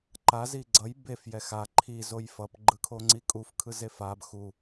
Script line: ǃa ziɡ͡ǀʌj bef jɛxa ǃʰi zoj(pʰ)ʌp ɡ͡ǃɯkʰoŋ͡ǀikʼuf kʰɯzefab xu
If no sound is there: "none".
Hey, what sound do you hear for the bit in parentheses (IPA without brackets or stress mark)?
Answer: f